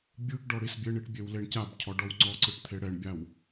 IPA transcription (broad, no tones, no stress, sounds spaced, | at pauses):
bʲ ɯ ɡ ɖ ɔ ɽ i s bʲ e ɳ i ʈ bʲ e w l e ɳ c a b cʰ ɔ ɖ ɔ w ŋ͡ǀ ɔ ǀ ɯ ʈ t̪ʰ e ɽ ɛ ɳ bʲ a w